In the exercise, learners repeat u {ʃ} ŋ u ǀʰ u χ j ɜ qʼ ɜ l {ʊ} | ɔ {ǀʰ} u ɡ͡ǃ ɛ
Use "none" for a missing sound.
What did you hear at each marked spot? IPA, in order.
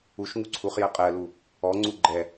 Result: ʃ, u, ŋ͡ǀ

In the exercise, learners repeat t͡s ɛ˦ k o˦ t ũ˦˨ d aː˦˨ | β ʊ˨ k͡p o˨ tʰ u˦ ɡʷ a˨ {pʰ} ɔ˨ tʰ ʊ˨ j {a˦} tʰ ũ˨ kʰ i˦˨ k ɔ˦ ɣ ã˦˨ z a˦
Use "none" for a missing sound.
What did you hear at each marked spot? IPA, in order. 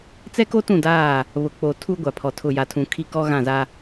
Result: pʰ, a˨

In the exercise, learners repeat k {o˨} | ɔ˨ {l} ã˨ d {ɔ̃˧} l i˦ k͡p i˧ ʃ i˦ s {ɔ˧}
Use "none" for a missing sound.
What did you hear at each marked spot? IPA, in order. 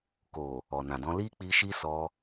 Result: o˨, n, ɔ̃˧, ɔ˧

